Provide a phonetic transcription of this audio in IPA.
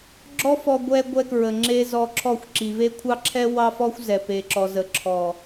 ɡ͡ǁ ɔ˦ f ɔ˧ ɡʷ ɛ˦ ɡʷ ɛ˧ k ɹ ə˨ ŋ͡ǁ e˧ z ɔ˧ ǁʰ ɔ˦˨ xʷ ǁ i˨ v e˦ kʷʰ ɑ˦ ǁʰ ɛ˦ w ɑ˦ f ɔ˦ xʷ z ɛ˨ p e˨ ǁ ɔ˨ z ə˨ ǁʰ ɔ˨

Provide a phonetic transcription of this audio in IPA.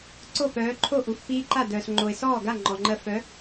ǀ o˥˩ p œː˨˥ ǃʰ o˥˩ ʔ u˨ f p iː˦ ǃ a˥˩ d œː˨ s ŋ͡ǃ o˨ ɪ̯ s ɔː˥˩ ɡ a˥˩ ŋ͡ǃ ɔ˨ ŋ͡ǃ ɜ˦ f œ˨˥

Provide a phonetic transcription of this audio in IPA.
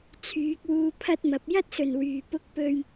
t͡sʰ yː˨˥ k̚ w uː˧ pʰ ɐ˥ t̚ m ɐ˨˥ p̚ j ɐ˥ t̚ s ɵ˨˩ n w yː˨˩ p ʊ˧ k̚ p ɵ˨ ɥ

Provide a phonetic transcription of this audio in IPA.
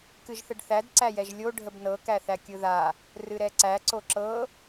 k ɨ ʒ θ ə ɖ θ æ d ǀ æ j ɛ ʒ lʲ o ɖʱ ə b n ɤ k æ θ æ kʲ ɯ ð a | r ɨ ɾ ɛ ǀ æ ǀ o ǁ ɤ

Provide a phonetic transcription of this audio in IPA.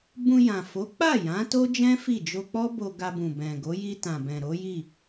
b ũ˧ j ã˨ f o˨˦ k͡p a˦˨ j ã˨˦ t o˦ d͡ʒ ɛ̃˦ f i˦˨ d͡ʒ o˧ k͡p ɔ˦ b o˧ ɡ a˧ b ũ˨ b ɛ̃˨ ɡ o˨˦ j i˧ t ã˨ b ɛ̃˨ ɾ o˨˦ j i˦˨

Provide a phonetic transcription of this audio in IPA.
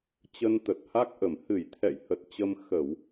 t͡ɕ ə˧ n t̪ ə˨˩ t̚ h a˦˥ k̚ ʔ ə˧˩ m h ɨ˧˩ j t̪ʰ ɛ̰˧˨ j h ə˨˩ t̚ t͡ɕ ə˧ m x ə˧˩˨ w

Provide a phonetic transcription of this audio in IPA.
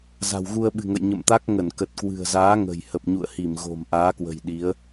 z a̤˨˩ w ɣ u˧ ə̯ ɓ ɨ̤˨˩ ŋ ə̰˧˨ j ɲ ə̰˧˨ m t̪ a˦˥ k̚ ŋ ə˧˩ n k ə˨˩ t̚ k w ɨ̤˨˩ ə̯ z aː˨˦ ŋ ə̤˨˩ j h ə˨˩ p̚ ɲ ṵ˧˨ ə̯ h i˧˩ m ɣ o̤˨˩ m ʔ aː˨˦ k w ə̤˨˩ j ɗ i˨˦ ə̯

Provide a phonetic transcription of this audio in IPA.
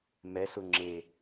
m ɛ s ʊ ŋ͡ǁ e

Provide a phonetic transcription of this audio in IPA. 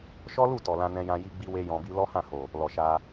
ʃ ɔ˦ l u˦˨ t ɔ˨ l ã˧ n ɛ̃˧ j ã˧ j i˦ ɡ͡b i˦ w e˦ j ɔ̃˧ b i˦ l ɔ˦ h ã˦˨ h o˨ | l ɔ˨ ʃ a˧

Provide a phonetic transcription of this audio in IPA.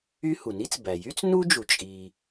y˥ h u˩ n i˥ t͡s b æ˩ j y˥ t͡s n u˥ d͡ʒ u˩ t͡ʃʼ i˩

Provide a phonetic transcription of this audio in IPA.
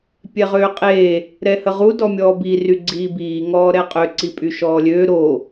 pʲ ɛ ʁ øː qʼ eː | ɾ ɛ h ə ʁ u d ɔ mʲ ɔː b i r y ɡ͡ǀ iː b iː ŋ ɔː ɾ ɛ qʼ ø ǀ i pʼ y ʃ ɔː lʲ øː ɾ o

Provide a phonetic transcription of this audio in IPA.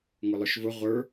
ŋ ʊ lˠ ʊ ʃ v ʊ ʁʷ ə˞

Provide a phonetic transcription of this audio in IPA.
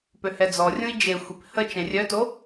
p ø h ɛ d͡z ɔ rʲ ũ i̯ d͡ʒ e xʷ e p h ə t͡ʃ ɛ̃ rʲ œ t o

